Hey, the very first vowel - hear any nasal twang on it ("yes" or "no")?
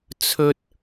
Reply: no